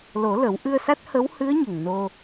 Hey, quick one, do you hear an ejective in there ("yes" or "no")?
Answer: no